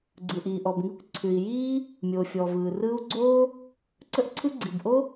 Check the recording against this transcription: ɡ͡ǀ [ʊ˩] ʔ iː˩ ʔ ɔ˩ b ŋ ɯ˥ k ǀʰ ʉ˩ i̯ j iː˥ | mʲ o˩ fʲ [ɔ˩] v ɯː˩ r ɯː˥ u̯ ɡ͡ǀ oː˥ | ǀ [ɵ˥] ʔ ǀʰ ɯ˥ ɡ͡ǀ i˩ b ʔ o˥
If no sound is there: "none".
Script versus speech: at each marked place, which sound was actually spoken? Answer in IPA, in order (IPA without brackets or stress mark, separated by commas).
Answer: ɯ˩, ɔ˩, ə˥